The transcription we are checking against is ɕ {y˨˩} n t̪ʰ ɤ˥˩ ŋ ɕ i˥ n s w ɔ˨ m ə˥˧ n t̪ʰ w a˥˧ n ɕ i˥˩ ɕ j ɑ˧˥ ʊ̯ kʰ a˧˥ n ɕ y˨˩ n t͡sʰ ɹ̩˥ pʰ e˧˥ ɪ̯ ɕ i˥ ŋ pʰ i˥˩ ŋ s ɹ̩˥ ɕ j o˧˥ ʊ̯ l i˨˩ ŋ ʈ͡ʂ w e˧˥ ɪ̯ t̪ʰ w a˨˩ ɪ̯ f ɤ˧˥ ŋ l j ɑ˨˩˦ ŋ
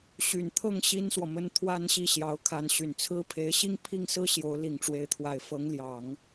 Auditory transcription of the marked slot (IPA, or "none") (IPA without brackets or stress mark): y˨˩